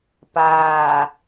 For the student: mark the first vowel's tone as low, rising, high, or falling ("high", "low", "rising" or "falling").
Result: low